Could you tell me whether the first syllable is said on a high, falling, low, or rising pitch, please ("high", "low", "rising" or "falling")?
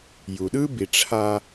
low